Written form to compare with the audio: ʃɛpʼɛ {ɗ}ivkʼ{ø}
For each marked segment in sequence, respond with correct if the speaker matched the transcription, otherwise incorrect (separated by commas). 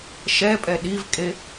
correct, incorrect